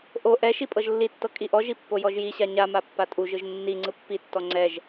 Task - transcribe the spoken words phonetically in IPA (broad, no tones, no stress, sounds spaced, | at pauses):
ʔ o ʔ ɛ ʃ i pʼ ɤ ʒ lː i tː ɤ kʼ i ʔ ɔ ʒ i pː o j ɔ ʒ j i ɕ a ɲ a m a pː a tʼ u ʒ ɯ ʒ nː i ŋ͡ǀ ɯ pː i tː ɔ ŋ͡ǀ ɛ ʒ